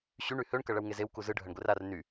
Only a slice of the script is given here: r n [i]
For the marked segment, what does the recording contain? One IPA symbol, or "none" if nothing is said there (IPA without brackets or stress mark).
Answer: y